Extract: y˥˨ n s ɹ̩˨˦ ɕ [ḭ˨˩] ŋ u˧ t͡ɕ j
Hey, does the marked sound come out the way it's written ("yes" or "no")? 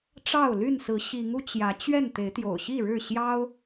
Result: no